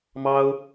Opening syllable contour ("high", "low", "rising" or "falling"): high